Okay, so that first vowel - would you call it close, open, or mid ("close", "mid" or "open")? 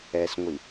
mid